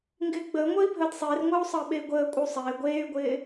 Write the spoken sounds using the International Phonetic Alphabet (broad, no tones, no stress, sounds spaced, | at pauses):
ŋ ɡ ɪː ɡ͡b əː ŋʷ əː i̯ bʱ əː d sˤ ɪː r ŋʷ əː u̯ sˤ əː ɓ e i̯ ɡʷ əː kʷʼ ɪ u̯ sˤ ɪː ɡʷ eː y̯ ɡʷ ɪː